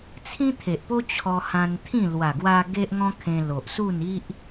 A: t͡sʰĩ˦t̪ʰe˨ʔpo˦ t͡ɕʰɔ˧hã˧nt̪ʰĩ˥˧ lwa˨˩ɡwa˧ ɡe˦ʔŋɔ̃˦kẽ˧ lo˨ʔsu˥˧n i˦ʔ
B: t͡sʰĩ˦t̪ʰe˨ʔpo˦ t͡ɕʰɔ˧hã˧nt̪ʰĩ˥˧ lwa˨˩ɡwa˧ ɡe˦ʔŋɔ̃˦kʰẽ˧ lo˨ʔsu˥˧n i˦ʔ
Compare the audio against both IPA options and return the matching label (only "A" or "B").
B